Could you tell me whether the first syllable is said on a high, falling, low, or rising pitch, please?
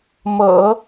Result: low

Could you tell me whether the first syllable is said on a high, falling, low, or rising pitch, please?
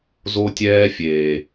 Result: high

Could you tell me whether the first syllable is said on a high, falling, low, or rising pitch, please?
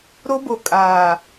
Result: high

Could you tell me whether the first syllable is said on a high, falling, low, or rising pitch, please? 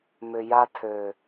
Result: low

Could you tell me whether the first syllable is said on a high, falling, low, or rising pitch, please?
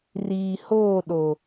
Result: low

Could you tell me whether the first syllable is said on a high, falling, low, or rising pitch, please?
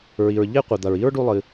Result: low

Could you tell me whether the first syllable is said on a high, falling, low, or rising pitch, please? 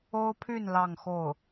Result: high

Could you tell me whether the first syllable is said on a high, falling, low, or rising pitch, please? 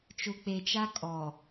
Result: low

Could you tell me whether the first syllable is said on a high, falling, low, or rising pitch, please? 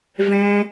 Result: low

